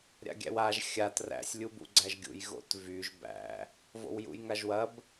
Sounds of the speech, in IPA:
ɾʲ a̰ ɡʲ æ̰ w a ʒ xʲ a t r æ̰ sʲ lʲ u b ṵ ɡ͡ǀ æ ʒ ɡʲ ṵ j ɣ o̰ t v y ʒ b æ̰ | v o̰ w j ṵ j ŋ a ʒ w ɐ b

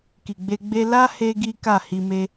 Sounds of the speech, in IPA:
k i˨ ɡ͡b e˧ ɡ͡b e˦ l a˦ h e˦ ɡ i˦ k a˦˨ h i˧ m e˦

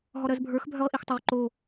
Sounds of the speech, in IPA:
ɦ ɔ ɾ ɜ z bʱ ə˞ x bʱ œ ʁ ʔ i x tˤ o ʁ ǃ o

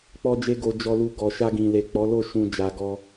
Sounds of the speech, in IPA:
k͡p ɔ˧ d͡ʒ e˧ ɡ o˨ d͡ʒ ɔ˨ l u˨ ɡ ɔ˨ ʃ a˧ ɡ ĩ˨ l e˨ k͡p ɔ˨˦ l o˦˨ ʃ ũ˨ d͡ʒ a˨ ɡ ɔ˧

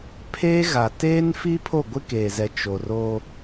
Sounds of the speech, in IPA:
pʰ eː˦ ɣ a˨ t eː˦ n f i˦ pʰ o˦˨ ɡʷ ɪ˦ k eː˨ z ɛ˨ t͡ʃ o˨ r o˦

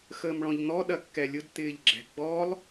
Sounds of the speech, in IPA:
x əː m ɭ ɔ̃ ʎ n̪ ɔ ɗ ɐ kː ɛ lʲ ʊ d t̪ ɪː ʎ ɡ͡ǁ ɛ̤ ɡ͡b ɔ lˠ

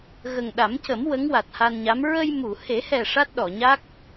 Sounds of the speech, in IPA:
ɣ ə˨˩ ŋ ɗ a˨˩˦ m c ə˨˩˦ m w ə˧˥ ŋ w a˨˩ t̚ h a˧ n ɲ a˧˥ m ɹ ə˧ j m u˨˩˨ h e˨˩˦ h ɛ˨˩ ʂ a˦˥ t̚ ɗ ɔ˨˩˨ ɲ a˦˥ k̚

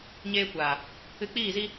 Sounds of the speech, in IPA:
ɲ eː˧ kʷ aː˨ | ɨ˧ k͡p iː˦˨ z i˦

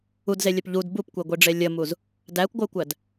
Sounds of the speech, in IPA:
u d z e lʲ œ p ʎ u d b u p kʷ e ɡʷ i ɖ͡ʐ e lʲ ə m u z | d æ kʷ ɡʷ œ kʷ æ d

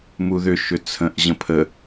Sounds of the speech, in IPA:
m u ð ʏ ʃ ʏ t͡sʰ ə̃ ʔ ʑ ə̃ pʰ ə

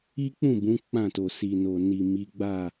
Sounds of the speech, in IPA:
i˦ k͡p ũ˦˨ b ũ˨˦ k͡p ã˦˨ t o˨ s i˨ n o˨ n i˨ m i˨˦ ɡ͡b a˦˨

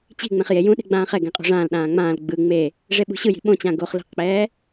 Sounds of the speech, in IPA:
t͡ɕ i̤ ŋ͡m ẽ χ j e j ũ ɗ e̤ ɡ͡b ãː χ ɛ ɡ ɛ̃ qʼ o̤ ʐ ãː l ɗ ãː ŋ͡m ãː l ɡ͡b ɯ ŋ͡m e | ʐ e ɓ ṳ ɕ ɯ j i̤ ɓ õ t͡ɕ ã ɡ o χ l i̤ q k͡p ɛː

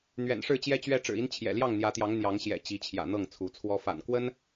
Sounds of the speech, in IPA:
n̪ ɥ ɛ̰˨˩ n ʂ ɻ̩˥˨ t͡ɕ j ɛ˦ t͡ɕ ɥ ɛ˦ ʈ͡ʂ ɻ̩˨˩ i˦ n t͡ɕʰ j ɛ̰˨˩ l j ɑ˥˨ ŋ n̪ j ä˨˦ t̪ j ɑ˨˦ ŋ n̪ j ɑ˨˦ ŋ ɕ j ɛ̰˨˩ t͡ɕ i˨˦ t͡ɕʰ j ä̰˨˩ n̪ ɤ˥˨ ŋ t͡sʰ u˨˦ t͡sʰ w ɔ˦ f a̰˨˩ n k w ə˦ n

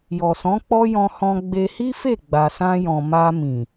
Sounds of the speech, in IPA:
j ɔ˨ s ɔ̃˨˦ k͡p ɔ˦ j ɔ̃˧ h ɔ̃˧ ɡ͡b e˧ h i˦ f e˦˨ ɡ͡b a˨ s ã˧ j ɔ̃˨ m a˧ m ĩ˨

